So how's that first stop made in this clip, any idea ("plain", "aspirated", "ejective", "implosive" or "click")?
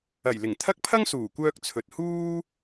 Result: aspirated